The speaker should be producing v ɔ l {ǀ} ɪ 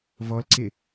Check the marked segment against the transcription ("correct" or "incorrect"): correct